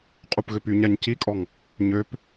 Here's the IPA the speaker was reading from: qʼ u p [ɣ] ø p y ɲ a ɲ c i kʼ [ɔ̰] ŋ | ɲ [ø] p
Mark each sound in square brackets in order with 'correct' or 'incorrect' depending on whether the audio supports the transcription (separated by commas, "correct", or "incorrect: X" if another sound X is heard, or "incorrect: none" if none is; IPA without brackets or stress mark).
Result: correct, incorrect: ɔ, correct